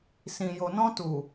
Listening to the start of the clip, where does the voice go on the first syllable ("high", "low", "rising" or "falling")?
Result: low